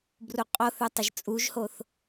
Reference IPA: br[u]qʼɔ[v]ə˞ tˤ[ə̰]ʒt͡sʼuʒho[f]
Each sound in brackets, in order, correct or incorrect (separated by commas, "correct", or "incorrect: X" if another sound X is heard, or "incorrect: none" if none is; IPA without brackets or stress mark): correct, incorrect: θ, incorrect: ə, incorrect: θ